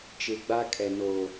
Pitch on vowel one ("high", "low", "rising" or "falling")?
low